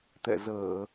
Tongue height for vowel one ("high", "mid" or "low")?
mid